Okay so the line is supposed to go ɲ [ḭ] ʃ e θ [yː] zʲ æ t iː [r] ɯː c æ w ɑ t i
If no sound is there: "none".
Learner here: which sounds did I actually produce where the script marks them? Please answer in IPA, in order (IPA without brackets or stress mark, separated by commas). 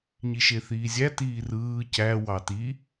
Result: i, iː, r